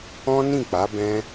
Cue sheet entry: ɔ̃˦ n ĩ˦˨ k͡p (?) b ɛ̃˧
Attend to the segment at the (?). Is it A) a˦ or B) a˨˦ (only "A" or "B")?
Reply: B